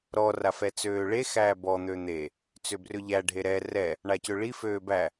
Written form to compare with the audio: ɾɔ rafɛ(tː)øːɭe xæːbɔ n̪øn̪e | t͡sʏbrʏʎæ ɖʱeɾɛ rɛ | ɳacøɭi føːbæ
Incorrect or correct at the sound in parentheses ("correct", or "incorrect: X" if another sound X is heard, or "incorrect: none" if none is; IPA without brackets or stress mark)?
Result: incorrect: t͡s